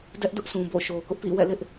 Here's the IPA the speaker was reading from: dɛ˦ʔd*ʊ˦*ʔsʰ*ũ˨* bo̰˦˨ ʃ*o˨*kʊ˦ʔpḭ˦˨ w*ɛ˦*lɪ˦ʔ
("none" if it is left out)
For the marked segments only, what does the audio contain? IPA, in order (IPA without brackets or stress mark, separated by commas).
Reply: ʊ˦, ũ˨, o˨, ɛ̰˦˨